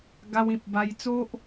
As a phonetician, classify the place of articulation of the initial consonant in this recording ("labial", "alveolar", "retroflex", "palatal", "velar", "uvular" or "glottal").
velar